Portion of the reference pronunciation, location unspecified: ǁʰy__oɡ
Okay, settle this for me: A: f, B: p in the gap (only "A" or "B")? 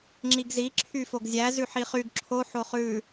A